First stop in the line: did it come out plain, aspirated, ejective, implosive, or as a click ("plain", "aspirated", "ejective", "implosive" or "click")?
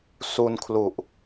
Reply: aspirated